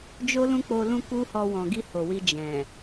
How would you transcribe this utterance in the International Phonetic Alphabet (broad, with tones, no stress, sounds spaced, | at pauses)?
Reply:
d͡ʒ o˦ l ũ˦ k͡p o˧ l ũ˦ k u˦ h ɔ˧ w ɔ̃˨ ɡ i˧ h o˨ w i˧ d͡ʒ ɛ̃˨